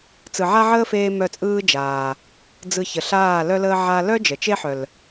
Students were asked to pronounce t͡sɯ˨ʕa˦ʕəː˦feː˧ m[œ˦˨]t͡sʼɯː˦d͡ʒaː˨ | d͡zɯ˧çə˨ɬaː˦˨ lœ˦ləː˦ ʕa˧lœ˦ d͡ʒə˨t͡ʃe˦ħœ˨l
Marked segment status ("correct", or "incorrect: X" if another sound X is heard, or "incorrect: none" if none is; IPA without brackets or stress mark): correct